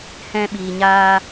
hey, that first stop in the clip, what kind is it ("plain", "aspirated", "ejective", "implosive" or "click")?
implosive